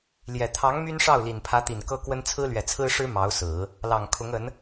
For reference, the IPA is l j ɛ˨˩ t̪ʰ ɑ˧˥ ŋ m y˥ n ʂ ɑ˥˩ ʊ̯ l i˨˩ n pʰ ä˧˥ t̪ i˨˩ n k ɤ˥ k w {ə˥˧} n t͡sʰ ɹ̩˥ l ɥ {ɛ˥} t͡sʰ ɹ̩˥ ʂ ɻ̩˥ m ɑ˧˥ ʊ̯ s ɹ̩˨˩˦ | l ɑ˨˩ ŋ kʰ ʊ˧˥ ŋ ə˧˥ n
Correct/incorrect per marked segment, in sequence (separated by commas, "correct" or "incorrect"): incorrect, incorrect